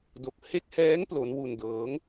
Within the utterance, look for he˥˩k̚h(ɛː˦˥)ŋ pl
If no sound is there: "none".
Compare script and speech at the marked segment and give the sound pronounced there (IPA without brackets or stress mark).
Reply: ɛː˦˥